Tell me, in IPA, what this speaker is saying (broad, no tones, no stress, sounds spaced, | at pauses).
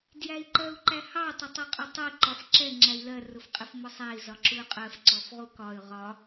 d j æ i̯ ǃ ɜ u̯ ǃ æ h ɑ tˤ ə tˤ i qʼ ʊ tˤ i ǃ ɒ f ǁ ɛ ŋ͡ǁ æ i̯ l ɜ r ʊ f qʼ ɪ f m ʊ sˤ æ i̯ z ɒ ǁ u y̯ qʼ ɜ f ǀ ɔ f ʁ u k ɒ y̯ ʁ ɒ